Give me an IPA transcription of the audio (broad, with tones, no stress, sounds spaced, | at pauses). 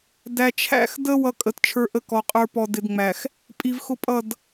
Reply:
d æ˨ t͡ʃʰ æ̰˦˨ x d ə˦ w ʌ˦ kʼ ə˨ t t͡ʃʰ ə˞˦ ʔ ə˦ k ɔ˨ qʼ ə˞˦ p ɔ˨ d ɪ˨ d ŋ͡m æ˨ x | pʼ i˨ v x ʊ˦ pʼ ʌ˦˨ d